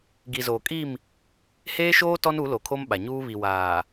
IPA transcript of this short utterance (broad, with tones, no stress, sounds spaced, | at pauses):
ɡ i˨ z oː˨ kʼ i˦˨ m | h eː˦ ʃ oː˦ t ɔ˦ n u˨˦ l o˨ kʰ o˦ m ɓ a˨ ɲ uː˦ β i˨ w aː˨